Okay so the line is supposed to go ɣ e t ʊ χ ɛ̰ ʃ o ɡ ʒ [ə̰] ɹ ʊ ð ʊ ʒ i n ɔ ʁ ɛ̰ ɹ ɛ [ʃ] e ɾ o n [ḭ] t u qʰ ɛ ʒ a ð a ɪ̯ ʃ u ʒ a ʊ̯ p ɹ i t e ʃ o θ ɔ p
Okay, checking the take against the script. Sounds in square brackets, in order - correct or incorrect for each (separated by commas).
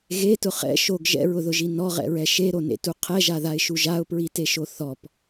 incorrect, correct, incorrect